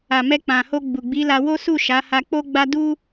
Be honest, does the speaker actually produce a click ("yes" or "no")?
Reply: no